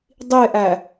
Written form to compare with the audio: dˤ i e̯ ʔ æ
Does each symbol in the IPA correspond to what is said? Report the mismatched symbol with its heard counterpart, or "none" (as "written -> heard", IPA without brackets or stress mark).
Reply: none